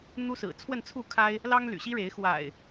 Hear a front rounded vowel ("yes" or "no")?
yes